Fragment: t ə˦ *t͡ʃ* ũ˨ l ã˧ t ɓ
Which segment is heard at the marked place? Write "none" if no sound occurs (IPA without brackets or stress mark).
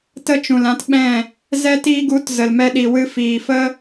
t͡ʃ